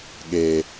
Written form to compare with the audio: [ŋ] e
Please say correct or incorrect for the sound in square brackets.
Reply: incorrect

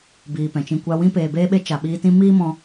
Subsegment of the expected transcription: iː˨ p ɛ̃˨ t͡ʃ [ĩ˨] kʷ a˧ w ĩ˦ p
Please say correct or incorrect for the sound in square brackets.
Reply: incorrect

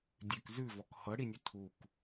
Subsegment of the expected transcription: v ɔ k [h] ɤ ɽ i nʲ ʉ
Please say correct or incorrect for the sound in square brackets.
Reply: correct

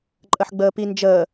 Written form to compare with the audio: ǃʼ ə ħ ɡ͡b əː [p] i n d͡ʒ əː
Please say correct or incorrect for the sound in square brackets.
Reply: correct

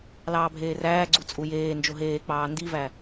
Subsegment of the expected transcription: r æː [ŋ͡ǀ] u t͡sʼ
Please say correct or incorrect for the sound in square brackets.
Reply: incorrect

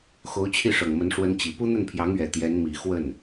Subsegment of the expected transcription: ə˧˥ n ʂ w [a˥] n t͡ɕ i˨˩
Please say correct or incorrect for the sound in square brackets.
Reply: incorrect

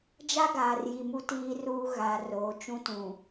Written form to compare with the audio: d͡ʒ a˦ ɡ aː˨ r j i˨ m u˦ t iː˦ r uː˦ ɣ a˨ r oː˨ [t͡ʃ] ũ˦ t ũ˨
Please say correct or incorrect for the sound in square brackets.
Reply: correct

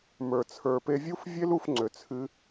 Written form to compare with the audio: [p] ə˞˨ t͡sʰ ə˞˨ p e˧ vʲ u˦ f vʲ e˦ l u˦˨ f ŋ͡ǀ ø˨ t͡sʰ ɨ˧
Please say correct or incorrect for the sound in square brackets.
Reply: incorrect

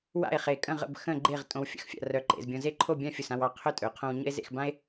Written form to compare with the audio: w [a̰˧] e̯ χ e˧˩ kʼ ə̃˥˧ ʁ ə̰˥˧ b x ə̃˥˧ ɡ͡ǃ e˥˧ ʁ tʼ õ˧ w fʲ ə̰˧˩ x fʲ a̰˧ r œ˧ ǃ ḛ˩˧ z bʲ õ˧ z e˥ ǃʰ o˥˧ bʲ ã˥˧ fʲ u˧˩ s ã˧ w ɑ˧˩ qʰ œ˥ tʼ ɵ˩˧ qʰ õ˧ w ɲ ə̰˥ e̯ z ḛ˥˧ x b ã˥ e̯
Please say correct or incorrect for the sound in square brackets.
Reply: incorrect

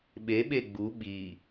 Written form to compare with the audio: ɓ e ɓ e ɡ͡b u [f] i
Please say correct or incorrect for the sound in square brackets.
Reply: incorrect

